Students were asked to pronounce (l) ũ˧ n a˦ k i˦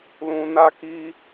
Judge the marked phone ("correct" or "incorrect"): correct